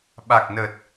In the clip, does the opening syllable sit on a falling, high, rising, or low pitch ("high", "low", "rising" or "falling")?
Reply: low